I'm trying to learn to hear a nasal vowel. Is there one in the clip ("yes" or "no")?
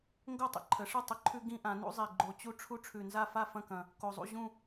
yes